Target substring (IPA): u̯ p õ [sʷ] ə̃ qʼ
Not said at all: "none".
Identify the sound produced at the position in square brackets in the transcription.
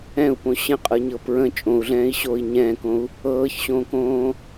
ɕ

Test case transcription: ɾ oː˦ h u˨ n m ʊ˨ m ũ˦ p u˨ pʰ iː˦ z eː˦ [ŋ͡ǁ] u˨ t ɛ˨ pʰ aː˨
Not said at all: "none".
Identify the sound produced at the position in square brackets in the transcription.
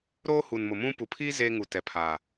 ŋ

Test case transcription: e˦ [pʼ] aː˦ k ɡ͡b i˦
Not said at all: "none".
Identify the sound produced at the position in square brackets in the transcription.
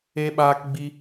ɓ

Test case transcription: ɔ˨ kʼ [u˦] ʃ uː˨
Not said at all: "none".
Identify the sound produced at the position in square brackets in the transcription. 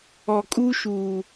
u˦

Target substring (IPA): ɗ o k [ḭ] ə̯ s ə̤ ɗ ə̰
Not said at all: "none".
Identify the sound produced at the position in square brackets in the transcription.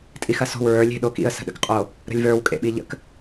ḭ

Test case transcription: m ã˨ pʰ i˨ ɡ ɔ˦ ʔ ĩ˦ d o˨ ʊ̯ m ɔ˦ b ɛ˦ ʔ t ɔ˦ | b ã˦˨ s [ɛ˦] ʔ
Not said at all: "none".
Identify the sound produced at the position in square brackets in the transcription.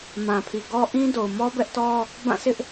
ɪ˦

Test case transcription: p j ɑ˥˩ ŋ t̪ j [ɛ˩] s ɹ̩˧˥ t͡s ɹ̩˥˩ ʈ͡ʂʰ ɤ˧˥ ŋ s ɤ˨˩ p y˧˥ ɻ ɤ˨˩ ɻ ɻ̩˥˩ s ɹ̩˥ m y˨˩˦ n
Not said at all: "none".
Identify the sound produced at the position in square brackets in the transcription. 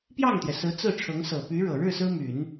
ɛ˩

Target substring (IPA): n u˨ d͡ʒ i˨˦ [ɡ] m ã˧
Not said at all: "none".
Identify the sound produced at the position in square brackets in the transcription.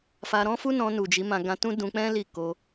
none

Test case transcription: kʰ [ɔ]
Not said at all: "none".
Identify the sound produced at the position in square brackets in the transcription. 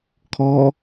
ɔ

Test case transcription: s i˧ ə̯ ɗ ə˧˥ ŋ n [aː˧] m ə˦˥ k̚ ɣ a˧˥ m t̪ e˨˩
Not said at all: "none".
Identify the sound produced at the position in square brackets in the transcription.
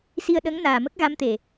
aː˨˩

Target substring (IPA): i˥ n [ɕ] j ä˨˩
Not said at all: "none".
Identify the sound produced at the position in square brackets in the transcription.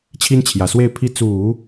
t͡ɕʰ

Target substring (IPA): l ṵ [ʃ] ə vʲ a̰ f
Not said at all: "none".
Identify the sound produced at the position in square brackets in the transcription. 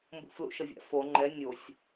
ʃ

